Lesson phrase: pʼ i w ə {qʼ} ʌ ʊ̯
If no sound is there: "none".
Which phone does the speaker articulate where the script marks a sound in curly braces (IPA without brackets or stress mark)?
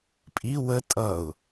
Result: tʼ